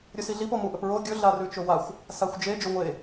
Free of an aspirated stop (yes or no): yes